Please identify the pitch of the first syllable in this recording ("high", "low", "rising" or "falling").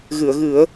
low